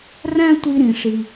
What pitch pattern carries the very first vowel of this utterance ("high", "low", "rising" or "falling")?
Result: high